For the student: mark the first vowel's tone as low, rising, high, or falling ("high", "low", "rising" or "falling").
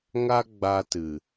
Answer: high